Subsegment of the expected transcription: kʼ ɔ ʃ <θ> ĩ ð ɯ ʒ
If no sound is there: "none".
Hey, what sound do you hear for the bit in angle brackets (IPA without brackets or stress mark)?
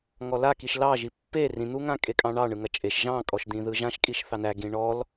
d̪